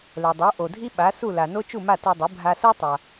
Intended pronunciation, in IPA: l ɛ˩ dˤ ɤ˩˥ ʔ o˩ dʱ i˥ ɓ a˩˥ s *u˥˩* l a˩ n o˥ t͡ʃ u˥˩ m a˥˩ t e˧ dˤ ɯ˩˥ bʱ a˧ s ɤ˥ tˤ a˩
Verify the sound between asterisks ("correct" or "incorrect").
correct